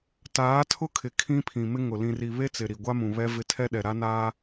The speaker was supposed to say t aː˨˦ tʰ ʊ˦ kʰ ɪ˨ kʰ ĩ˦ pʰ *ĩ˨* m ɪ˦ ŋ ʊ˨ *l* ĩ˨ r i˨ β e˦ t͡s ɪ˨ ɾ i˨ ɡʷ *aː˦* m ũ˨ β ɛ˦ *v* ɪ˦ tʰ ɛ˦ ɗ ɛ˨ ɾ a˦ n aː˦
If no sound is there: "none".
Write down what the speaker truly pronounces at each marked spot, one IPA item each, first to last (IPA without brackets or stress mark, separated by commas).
ĩ˨, l, a˦, v